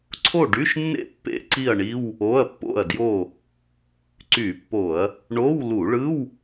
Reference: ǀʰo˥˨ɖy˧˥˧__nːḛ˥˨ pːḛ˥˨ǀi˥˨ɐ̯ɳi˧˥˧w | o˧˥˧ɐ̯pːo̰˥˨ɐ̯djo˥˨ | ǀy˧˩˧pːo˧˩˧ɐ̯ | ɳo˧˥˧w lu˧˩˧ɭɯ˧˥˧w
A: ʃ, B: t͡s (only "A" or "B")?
A